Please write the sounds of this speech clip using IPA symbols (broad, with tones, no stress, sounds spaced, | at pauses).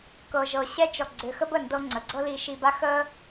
k ɤ˧ ʒ ɤ˧ ɕ ɛ˦ t͡ʃ ɔ˧ ɡ͡ǀ ø˧ x ə˦ b ə˦˨ n d ɤ˧ ŋ͡ǀ ə˨ ɡ͡ǀ ɤ˦ l i˧ ʃ i˧ b a˦ x ə˦